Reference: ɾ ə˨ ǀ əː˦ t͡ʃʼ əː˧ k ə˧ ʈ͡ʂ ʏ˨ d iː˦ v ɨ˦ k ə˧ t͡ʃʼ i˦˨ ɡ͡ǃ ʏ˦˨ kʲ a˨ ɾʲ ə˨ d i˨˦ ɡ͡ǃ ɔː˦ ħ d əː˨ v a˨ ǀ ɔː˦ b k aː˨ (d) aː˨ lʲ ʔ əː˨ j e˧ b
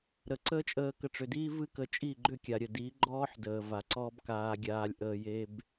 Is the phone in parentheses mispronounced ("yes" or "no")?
yes